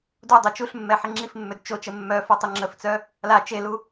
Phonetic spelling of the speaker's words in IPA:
d u dˤ ø t͡ʃ u ɬ mː ɛ ħ e ŋ͡ǁ i f mː ø d t͡ʃ o t͡ʃ ə mː œ f ɔ tˤ y ŋ͡ǁ ə f t͡s œ | l a t͡ʃ e l u

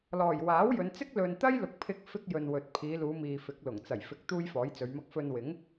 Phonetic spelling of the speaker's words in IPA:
l ɔː˨˩ j w aː˨˥ w j ɵ˨˧ n t͡s ɪ˥ k̚ l ɵ˨ n t̪ ɐ˥ j l ʊ˨˥ k̚ pʰ ɪ˧ k̚ f ɪ˥ k̚ j ɵ˨ n w ɵ˨ t̚ pʰ iː˨˧ l uː˨˧ m iː˨ f ɪ˨˥ k̚ l ʊ˨˩ ŋ t͡s ɐ˨˩ j f ɪ˨˥ k̚ t̪ uː˥ j f ɔː˨˥ j t͡s ɵ˨˧ ɥ m ɐ˥ k̚ f ɵ˧ n w ɪ˨˥ ŋ

